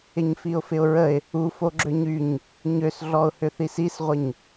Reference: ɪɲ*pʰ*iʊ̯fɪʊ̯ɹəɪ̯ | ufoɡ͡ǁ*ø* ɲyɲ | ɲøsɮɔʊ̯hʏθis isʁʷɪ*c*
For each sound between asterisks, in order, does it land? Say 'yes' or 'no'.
no, yes, no

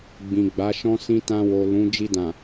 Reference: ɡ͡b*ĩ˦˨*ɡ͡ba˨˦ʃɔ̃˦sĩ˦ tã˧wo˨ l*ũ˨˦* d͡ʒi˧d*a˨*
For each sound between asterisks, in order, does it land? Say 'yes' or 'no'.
no, yes, no

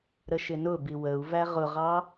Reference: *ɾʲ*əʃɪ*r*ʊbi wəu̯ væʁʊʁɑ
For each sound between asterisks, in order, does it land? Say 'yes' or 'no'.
no, no

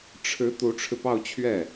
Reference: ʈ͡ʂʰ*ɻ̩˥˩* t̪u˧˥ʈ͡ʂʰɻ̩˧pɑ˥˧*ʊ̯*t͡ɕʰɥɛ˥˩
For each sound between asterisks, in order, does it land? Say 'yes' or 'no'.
no, yes

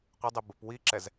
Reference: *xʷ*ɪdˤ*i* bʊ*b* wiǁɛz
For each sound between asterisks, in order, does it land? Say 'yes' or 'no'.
no, yes, no

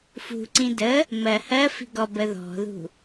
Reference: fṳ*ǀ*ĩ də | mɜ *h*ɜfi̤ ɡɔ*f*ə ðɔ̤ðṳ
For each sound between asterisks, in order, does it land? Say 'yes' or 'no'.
yes, yes, no

